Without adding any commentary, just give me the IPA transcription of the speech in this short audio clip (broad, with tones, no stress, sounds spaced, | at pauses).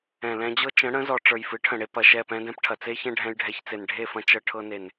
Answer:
ɛ̃˨ l ɛ̃˧ d͡ʑ ɤ˦ t͡ʃ ə̃˨˦ ɽ ə̃˨˦ z ɔ˨ ʈ͡ʂ ə˞˨ j f ɨ˨˦ ʈʰ ə̃˨ ɽ e˧ p ɐ˨ ʃ ɛ˦˨ p ɛ̃˦ d ɛ̃˦ p ʈʰ ɐ˨ t͡s e˦ ç ɛ̃˦ ɖʱ ɛ̃˧ j ɖʱ ɛ˧ ç t͡s e˨ n ɖʱ e˦˨ f ɐ̃˧ t͡ʃ ɤ˧ ʈʰ ɤ˧ n e˨ n